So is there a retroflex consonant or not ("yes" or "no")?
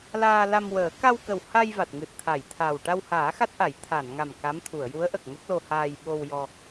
yes